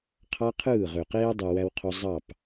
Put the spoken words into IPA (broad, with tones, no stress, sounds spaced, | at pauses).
qʰ ɑ˦ qʰ ɯː˦˨ ʁ ø˨ q eː˦ dˤ ɯ˨ w æ˦ w qʰ o˦ zˤ ɑ˦˨ p